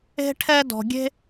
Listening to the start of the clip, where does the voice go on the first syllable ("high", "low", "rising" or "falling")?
high